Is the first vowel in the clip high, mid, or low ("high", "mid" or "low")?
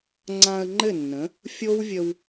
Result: low